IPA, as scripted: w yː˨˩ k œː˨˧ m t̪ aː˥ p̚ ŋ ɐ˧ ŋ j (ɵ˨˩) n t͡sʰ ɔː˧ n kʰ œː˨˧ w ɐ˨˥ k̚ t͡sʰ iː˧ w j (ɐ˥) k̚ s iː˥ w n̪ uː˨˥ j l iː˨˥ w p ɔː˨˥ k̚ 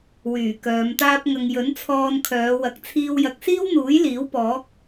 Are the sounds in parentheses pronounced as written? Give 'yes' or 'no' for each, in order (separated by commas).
no, no